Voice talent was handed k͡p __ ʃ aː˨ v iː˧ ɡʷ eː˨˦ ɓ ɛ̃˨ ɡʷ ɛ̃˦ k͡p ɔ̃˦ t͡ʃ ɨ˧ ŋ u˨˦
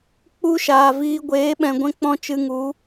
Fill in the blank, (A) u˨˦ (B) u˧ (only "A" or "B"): B